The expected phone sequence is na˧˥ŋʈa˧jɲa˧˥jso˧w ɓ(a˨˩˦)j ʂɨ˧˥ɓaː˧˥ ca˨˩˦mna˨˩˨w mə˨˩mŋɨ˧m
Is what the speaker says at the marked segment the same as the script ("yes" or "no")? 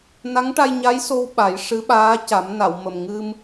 yes